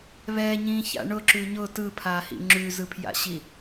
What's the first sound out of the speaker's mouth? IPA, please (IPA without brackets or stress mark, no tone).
β